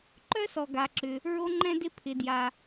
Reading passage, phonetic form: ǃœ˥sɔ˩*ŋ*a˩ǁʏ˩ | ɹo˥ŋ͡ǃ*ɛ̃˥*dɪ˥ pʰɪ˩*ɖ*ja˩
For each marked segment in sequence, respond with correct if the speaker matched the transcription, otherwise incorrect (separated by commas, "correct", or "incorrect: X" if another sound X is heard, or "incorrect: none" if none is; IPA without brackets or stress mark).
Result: incorrect: ɡ, correct, incorrect: d